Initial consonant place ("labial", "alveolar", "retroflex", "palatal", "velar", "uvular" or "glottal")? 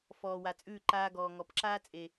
labial